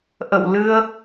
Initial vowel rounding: unrounded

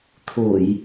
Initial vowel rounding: rounded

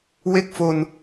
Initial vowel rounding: unrounded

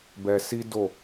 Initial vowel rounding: unrounded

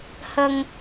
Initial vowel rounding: unrounded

